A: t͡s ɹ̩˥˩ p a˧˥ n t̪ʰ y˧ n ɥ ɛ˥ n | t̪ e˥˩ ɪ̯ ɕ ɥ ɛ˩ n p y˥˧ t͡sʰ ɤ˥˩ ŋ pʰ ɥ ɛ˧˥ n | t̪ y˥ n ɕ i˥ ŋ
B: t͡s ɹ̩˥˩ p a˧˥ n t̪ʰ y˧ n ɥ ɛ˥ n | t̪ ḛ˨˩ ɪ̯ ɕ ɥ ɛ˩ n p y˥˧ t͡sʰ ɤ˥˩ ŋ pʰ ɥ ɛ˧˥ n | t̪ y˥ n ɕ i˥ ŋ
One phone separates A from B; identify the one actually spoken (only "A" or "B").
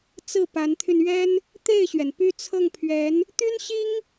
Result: A